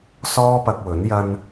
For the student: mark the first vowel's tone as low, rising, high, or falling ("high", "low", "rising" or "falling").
high